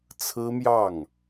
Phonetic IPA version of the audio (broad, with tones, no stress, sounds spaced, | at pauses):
t͡sʰ ɹ̩˥ m j ɑ˥˩ ŋ